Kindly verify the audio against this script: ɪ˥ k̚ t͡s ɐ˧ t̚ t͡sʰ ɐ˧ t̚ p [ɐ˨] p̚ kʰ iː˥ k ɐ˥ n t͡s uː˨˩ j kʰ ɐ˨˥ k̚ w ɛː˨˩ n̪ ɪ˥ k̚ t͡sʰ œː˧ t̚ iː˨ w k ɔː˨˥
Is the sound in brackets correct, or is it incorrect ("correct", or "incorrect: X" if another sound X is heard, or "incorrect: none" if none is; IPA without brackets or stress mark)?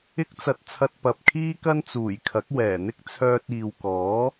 correct